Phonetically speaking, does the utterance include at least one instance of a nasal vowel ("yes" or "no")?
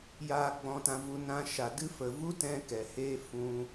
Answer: yes